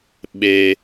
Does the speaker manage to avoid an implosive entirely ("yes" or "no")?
no